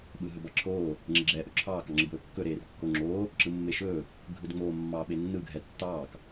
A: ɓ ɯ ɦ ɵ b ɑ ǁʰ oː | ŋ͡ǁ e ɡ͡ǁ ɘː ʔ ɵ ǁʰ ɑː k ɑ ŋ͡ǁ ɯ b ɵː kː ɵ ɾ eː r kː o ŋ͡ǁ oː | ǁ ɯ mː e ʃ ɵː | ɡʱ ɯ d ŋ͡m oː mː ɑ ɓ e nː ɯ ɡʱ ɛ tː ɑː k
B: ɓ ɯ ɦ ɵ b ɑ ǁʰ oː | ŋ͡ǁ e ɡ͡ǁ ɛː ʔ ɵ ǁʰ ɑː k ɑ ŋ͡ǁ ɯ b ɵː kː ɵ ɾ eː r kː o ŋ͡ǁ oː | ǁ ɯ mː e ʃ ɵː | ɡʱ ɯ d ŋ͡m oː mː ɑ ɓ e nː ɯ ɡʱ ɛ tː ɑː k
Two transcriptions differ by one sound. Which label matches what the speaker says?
B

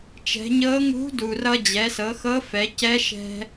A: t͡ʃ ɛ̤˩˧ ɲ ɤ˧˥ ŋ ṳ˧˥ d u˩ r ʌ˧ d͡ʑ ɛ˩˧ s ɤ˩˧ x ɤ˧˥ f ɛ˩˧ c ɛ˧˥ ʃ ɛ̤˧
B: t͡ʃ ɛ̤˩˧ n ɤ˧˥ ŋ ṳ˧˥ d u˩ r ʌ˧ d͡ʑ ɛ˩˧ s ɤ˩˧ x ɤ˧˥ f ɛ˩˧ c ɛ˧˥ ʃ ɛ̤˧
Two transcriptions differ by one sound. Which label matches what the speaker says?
A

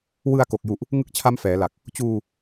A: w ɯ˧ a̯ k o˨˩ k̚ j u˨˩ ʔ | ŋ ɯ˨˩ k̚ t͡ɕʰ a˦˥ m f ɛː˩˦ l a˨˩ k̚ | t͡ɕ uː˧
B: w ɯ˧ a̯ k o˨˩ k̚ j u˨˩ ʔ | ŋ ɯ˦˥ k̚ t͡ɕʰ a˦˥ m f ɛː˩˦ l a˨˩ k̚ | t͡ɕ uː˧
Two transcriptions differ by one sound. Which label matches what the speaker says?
B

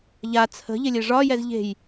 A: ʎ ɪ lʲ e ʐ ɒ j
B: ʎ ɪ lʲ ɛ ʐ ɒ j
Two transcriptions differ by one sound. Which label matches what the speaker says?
A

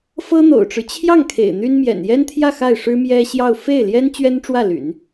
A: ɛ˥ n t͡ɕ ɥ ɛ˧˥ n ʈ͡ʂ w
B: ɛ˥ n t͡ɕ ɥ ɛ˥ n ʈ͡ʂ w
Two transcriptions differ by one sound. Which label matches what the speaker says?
B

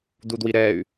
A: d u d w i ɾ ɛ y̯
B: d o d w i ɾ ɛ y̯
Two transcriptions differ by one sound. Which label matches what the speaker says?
A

